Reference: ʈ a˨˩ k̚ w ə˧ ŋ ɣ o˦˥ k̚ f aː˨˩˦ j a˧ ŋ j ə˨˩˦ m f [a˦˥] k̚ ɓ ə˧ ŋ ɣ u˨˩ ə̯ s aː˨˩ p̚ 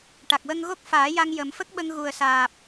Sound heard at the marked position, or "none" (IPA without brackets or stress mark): ə˦˥